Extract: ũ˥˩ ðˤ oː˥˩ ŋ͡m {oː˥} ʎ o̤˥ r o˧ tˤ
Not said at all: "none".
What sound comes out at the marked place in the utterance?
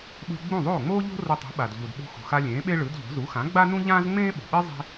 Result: oː˥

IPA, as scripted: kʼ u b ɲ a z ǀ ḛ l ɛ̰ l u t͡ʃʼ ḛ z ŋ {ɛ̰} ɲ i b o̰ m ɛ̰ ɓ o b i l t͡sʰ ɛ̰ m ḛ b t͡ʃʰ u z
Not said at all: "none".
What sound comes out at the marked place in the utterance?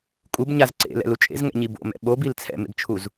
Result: ɛ̰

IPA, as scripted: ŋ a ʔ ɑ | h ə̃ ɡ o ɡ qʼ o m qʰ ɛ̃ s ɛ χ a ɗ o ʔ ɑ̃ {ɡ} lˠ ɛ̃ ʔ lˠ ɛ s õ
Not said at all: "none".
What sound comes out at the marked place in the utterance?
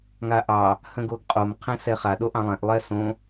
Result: none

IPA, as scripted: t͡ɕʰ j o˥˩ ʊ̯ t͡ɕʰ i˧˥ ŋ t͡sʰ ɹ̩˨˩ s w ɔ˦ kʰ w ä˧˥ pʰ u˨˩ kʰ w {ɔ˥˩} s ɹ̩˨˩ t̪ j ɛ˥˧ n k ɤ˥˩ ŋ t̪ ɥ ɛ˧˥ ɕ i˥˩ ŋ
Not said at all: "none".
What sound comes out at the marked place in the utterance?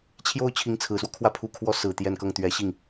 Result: ɔ˧˥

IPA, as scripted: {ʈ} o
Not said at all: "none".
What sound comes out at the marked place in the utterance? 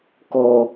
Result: k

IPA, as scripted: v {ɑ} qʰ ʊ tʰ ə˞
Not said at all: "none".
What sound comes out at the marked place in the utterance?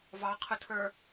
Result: ɑ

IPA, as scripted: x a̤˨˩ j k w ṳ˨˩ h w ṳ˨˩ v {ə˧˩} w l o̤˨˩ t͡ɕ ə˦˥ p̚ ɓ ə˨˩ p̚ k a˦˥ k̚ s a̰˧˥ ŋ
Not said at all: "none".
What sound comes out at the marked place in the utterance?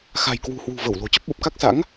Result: ə˧˩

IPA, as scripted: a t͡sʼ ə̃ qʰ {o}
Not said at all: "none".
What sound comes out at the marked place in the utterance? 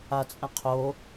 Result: o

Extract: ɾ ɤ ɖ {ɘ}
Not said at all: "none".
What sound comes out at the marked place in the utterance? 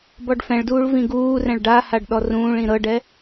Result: ɛ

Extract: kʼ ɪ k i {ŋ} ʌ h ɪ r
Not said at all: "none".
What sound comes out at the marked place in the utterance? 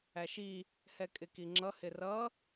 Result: ŋ͡ǁ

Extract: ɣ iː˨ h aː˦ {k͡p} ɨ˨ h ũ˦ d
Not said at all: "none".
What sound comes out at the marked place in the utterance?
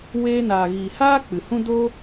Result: k͡p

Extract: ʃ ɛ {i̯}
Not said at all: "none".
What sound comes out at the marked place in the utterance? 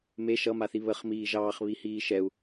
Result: u̯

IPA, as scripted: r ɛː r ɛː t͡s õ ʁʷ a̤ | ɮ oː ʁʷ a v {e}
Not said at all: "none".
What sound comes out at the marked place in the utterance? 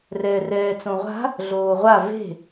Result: e̤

